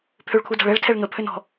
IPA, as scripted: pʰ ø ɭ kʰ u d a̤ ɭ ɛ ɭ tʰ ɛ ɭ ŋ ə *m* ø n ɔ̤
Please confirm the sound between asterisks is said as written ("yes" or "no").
no